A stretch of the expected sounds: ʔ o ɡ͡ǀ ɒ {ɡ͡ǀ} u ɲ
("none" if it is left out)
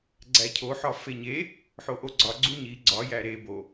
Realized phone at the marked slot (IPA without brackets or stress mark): ɡ͡ǀ